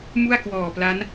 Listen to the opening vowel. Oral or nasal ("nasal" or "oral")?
oral